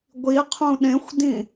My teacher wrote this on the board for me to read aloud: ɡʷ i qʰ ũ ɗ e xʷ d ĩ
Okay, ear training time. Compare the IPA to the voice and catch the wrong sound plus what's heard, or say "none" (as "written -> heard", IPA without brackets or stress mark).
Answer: e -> ẽ